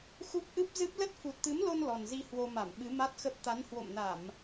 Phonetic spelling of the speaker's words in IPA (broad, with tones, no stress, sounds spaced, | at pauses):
x u˦˥ p̚ ʔ ɨ˦˥ p̚ z ɨ˦˥ p̚ l ə˦˥ t̚ f u˨˩ t̚ t̪ ɨ˨˦ m l o˧ n l ɔ˨˩ n z i˧ h w o˧ m a˧˩ m ɓ ɨ˨˦ m a˦˥ t̚ x ə˦˥ p̚ t̪ a˨˦ n h w o̰˧˨ m n a˧˩˨ m